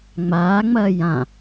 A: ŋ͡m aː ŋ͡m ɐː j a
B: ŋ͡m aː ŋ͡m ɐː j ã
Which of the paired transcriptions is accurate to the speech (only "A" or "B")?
B